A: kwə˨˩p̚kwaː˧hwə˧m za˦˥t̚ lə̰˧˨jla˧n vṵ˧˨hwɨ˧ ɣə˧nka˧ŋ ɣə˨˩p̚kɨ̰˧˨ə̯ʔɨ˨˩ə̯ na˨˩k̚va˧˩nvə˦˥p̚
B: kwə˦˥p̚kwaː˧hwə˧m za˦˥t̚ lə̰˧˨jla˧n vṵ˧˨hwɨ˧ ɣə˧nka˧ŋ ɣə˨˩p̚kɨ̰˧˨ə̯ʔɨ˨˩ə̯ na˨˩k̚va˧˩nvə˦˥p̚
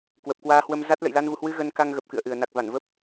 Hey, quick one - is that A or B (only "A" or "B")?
A